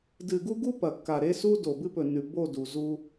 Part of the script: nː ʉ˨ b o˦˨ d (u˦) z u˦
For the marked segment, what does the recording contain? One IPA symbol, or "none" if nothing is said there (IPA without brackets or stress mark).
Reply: u˨